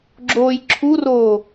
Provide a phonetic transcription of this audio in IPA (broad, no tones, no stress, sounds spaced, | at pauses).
ɡ͡ǁ oː j ǁʰ u r oː